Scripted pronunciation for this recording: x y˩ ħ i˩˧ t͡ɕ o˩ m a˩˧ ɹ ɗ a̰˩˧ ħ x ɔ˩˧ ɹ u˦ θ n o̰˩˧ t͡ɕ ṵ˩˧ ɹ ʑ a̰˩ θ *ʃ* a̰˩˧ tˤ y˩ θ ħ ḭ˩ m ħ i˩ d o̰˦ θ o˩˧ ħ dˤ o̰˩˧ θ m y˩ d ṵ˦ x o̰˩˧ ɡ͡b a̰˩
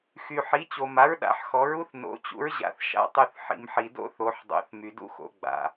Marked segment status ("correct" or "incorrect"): correct